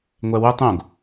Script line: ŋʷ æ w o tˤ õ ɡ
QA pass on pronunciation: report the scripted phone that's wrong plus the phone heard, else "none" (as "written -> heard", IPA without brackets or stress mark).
none